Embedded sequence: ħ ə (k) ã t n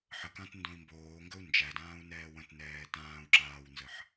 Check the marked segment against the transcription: correct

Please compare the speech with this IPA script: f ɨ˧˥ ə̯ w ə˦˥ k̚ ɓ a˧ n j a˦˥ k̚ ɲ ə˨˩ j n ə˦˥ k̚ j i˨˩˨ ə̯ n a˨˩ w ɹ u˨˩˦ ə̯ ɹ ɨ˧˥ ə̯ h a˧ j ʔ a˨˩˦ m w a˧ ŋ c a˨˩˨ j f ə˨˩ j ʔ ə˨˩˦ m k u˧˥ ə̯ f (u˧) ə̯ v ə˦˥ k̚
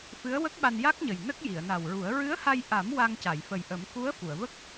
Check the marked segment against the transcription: incorrect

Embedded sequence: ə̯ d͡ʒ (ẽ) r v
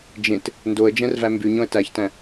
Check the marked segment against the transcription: incorrect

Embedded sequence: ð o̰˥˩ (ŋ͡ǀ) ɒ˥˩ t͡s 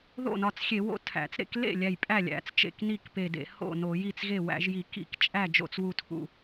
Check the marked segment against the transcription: incorrect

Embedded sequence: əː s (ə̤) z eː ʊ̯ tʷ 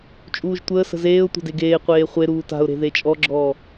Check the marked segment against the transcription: correct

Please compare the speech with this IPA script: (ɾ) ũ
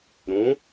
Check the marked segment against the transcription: correct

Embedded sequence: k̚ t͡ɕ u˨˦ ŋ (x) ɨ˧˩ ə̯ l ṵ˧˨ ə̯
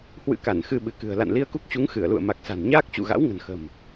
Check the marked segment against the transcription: correct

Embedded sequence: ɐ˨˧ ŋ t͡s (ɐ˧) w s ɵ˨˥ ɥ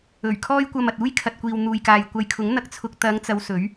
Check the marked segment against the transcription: incorrect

